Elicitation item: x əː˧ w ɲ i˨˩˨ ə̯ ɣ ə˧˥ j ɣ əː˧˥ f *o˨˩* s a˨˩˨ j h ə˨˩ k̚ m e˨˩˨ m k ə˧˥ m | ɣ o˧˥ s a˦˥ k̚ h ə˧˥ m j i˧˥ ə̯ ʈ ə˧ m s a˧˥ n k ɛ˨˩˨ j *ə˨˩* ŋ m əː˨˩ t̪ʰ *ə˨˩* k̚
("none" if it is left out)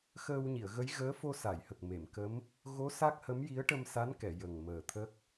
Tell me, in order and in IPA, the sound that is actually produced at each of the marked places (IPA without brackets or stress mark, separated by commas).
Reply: o˧, ə˨˩, ə˦˥